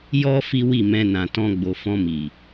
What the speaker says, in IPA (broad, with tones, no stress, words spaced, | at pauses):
jɔ˦ fi˦wi˦˨mɛ̃˧ nã˨tɔ̃˧ɡ͡bo˨ fɔ̃˧mi˨